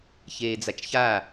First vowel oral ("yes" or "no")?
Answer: yes